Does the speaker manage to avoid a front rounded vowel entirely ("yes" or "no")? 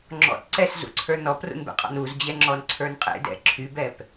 no